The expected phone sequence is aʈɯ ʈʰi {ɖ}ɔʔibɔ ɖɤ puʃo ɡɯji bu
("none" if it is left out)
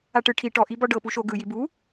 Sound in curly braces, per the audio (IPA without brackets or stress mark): ʈ